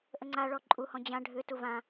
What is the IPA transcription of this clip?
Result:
ʔəŋ͡ǀaɭɔ ǃʼuhɔ̃ d͡ʑã ɖʱʏtu vã

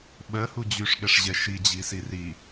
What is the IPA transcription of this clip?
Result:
ɓɜhu d͡ʑyʂɠɛʂʑɛ ʃid͡ʑisi ri

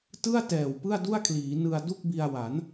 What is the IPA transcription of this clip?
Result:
tɯ˥˩a̯tɛː˨˩w pɯ˥˩a̯du˥˩a̯kʰliː˩˦ nɯ˧a̯du˥˩k̚bi˧a̯wa˩˦n

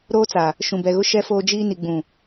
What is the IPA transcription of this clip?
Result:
ɾoː˦t͡sa˨ | ʃũ˨bɛ˨ɣʊ˦ ʃɛ˦foː˦d͡ʒiː˦ ni˨ɡ͡bũ˨

